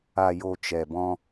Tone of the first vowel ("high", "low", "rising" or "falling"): low